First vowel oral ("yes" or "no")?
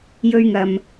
yes